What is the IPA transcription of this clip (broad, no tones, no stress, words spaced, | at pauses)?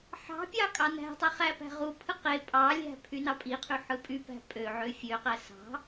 ħɑ̤pʲɑ kʼɑnæ̤tˤi χæpæ̤ʁupʰɯ qe pʼɑlʲæ̤ pʰynɑpʼiqʰy ħɯpʼypæ̤ pʼøʕø fʲøqæ sɑ̤